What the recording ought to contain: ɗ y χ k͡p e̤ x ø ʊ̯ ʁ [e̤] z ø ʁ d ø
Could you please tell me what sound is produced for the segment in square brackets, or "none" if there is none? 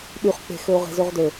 e̤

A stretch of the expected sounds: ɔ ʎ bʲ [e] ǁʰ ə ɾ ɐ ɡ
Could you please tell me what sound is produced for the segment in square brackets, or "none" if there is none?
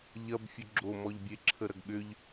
e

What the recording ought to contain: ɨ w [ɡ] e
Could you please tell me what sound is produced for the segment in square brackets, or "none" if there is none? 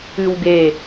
ɡ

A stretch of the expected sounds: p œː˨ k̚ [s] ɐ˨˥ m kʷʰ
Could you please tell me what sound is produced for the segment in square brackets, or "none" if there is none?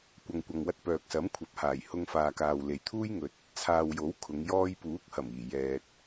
s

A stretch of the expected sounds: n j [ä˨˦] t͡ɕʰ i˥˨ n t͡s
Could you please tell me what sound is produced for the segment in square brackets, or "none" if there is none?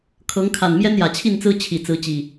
ä˨˩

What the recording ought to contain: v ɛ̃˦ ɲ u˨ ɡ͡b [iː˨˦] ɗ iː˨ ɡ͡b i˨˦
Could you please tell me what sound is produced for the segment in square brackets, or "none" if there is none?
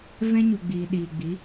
iː˨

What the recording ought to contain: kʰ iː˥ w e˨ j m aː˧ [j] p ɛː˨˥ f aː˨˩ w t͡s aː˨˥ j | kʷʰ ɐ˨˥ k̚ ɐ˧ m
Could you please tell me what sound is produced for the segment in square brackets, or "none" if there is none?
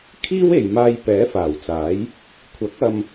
j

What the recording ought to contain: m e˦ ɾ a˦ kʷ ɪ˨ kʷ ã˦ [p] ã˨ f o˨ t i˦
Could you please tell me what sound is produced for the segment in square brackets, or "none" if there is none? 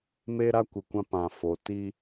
p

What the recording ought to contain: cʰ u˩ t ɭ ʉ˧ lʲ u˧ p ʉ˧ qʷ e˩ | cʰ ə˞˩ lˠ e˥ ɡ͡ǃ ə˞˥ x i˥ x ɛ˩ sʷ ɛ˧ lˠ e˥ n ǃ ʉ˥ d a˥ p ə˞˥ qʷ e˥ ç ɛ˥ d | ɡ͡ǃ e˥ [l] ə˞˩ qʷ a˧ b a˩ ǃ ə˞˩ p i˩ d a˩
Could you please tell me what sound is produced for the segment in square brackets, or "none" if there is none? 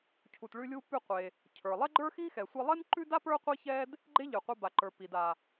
ʎ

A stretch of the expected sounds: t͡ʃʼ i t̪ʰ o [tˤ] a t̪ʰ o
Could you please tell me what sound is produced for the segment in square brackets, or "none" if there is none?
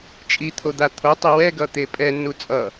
d̪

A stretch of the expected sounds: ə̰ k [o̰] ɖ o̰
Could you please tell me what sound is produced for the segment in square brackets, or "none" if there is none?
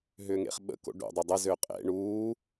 o̰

